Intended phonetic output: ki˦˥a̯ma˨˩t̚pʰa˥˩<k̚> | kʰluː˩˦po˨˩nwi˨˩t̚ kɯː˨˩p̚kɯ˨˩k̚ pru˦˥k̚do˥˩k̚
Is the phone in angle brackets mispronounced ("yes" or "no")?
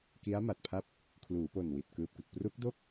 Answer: yes